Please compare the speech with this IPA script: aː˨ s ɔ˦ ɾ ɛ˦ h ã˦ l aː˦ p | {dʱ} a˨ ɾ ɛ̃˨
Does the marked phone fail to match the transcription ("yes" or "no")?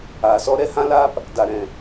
yes